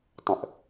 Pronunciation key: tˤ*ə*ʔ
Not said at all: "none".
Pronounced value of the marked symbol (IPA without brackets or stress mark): ə̃